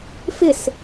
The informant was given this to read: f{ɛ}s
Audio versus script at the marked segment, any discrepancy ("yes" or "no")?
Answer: yes